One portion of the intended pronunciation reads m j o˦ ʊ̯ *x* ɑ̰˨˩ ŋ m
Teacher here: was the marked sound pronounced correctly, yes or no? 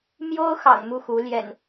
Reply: yes